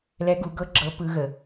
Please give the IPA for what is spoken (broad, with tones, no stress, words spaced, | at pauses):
lɛ˦˥ɡu˨˥ɡɤ˦˥ ɡ͡ǁɤ˦˥ pɯ˦˥ɣə˨˥